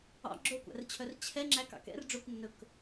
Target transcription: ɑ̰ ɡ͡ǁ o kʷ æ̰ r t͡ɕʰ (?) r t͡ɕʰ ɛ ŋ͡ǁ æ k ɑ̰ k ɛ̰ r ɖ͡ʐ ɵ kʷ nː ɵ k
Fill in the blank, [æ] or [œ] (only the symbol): œ